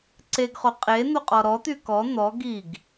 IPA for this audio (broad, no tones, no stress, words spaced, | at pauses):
ǀeɡχo qʼe n̪oqʼɔɾɔt̪y kɔ n̪ɔ ɡiɡ